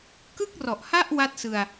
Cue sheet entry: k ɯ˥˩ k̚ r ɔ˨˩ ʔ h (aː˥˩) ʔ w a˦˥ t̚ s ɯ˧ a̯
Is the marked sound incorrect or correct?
incorrect